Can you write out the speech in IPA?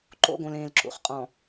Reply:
ǃo̰˦˨ɡõ˨lẽː˨l ǁṵ˨χqʼɔ̃˨

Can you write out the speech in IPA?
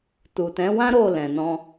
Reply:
tu˨ tɛ̃˨˦wã˦ ɾo˦˨ lɛ̃˨nɔ̃˧

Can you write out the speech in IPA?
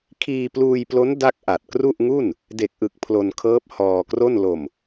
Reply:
kʰiː˧pluː˧jplo˦˥n da˥˩k̚ ʔa˨˩t̚kru˥˩ʔŋu˥˩n | de˨˩k̚ʔɯ˨˩k̚ pʰlo˧nkʰɤː˦˥p̚ hɔː˧kro˥˩n lo˨˩m

